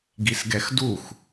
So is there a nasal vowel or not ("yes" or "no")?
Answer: no